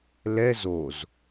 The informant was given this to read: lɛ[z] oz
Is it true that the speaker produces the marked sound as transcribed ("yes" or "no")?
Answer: yes